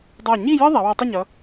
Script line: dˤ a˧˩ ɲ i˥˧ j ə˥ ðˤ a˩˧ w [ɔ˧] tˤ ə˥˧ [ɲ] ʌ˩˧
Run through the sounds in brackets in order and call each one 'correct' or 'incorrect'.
correct, correct

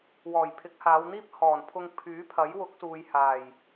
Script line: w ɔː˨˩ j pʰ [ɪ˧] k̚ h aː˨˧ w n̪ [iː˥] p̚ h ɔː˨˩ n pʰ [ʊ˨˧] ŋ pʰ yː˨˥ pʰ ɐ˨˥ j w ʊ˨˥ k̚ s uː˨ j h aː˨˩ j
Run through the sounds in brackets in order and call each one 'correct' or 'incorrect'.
incorrect: ɪ˨˥, correct, incorrect: ʊ˧

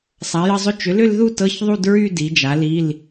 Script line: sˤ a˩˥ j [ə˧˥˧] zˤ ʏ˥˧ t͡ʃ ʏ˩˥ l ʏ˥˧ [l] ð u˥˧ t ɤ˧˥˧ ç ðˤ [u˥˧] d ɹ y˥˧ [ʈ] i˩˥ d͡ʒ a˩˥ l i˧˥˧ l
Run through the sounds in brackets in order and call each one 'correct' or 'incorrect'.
correct, correct, correct, incorrect: d

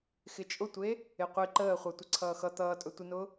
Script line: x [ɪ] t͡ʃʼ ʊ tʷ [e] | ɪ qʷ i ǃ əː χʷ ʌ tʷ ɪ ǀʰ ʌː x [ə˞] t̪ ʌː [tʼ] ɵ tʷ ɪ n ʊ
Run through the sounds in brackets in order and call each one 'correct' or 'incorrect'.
correct, correct, incorrect: ʌ, correct

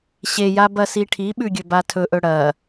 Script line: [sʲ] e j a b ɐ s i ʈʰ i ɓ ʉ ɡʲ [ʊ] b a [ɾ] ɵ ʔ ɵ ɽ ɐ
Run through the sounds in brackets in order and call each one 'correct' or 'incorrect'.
incorrect: ɕ, incorrect: ɵ, incorrect: tʰ

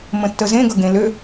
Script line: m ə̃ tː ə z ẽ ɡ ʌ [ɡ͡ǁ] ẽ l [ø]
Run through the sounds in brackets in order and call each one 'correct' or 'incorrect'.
incorrect: ɡ, correct

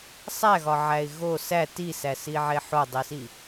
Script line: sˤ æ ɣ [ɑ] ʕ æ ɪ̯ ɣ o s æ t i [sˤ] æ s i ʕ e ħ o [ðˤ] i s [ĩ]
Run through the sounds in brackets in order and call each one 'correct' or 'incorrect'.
incorrect: ɒ, incorrect: s, incorrect: dˤ, incorrect: i

